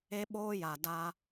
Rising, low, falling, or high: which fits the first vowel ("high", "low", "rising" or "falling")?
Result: high